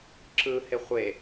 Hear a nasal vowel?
no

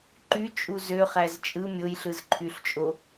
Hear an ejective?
yes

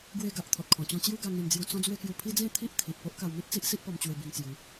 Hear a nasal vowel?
yes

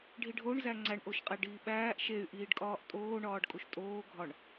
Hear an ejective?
yes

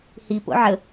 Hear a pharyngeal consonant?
yes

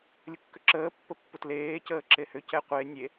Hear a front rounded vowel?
yes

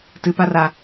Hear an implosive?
no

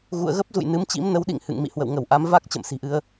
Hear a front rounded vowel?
no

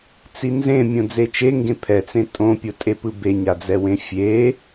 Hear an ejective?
yes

